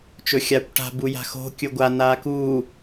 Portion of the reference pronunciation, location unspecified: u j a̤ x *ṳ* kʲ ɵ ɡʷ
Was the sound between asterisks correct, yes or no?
no